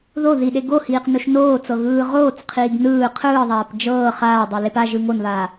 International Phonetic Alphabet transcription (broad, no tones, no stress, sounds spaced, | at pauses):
ð o ð i ɗ e ɡ o h iː q n o ʃ n oː t͡s ɤ ɣ ɯː ʁ oː t͡s qʰ iː ɡ n ɯː qʰ ɯː ðˤ aː p d͡ʒ ɤː χ aː dˤ e l e p a ʒ ɯ ŋ o n β aː